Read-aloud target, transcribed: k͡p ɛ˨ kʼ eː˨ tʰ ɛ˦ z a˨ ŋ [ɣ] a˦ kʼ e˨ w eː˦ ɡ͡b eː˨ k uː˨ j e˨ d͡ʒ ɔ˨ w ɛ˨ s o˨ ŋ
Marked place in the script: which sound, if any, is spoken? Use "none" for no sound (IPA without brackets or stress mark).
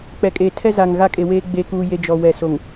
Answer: ɣ